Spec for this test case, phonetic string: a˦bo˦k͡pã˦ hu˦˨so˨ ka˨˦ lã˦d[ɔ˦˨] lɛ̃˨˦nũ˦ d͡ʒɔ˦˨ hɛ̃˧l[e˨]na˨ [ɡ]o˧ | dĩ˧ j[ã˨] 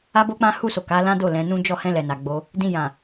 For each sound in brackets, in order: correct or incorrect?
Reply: incorrect: o˦˨, incorrect: ɛ˨, incorrect: ɡ͡b, correct

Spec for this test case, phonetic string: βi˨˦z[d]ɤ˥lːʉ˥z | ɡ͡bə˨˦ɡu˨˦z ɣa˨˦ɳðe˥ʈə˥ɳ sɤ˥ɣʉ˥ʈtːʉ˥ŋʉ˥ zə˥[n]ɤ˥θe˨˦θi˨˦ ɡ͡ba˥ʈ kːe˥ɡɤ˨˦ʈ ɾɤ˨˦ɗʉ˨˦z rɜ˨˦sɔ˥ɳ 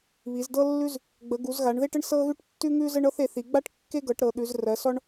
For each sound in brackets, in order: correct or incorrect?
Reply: correct, incorrect: ɳ

